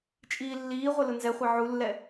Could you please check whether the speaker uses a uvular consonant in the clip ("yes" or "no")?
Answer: yes